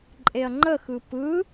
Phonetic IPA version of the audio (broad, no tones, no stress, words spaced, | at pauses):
ǃʼeɐ̯ŋ͡ǃəxɯ pɯ